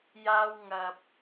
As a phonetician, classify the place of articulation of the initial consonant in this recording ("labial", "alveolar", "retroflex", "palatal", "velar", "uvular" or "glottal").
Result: palatal